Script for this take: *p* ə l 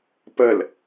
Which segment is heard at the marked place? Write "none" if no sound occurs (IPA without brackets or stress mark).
p